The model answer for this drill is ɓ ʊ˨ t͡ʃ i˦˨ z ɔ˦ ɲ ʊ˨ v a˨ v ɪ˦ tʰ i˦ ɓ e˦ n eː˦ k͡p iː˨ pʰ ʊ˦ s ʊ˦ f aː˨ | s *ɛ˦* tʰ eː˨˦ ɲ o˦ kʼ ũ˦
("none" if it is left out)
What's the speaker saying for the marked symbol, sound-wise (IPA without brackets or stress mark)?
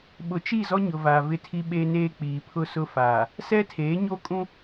ɛ˦